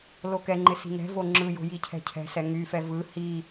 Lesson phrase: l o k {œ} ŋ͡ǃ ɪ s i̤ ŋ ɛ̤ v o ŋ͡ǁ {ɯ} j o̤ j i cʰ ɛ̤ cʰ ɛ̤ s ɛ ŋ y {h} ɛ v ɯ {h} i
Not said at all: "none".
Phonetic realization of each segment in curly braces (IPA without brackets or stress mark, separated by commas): ɛ, ɯ, f, h